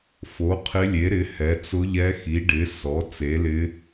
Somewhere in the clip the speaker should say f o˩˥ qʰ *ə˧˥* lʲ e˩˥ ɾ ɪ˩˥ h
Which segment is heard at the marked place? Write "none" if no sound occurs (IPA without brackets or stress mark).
ɪ˧˥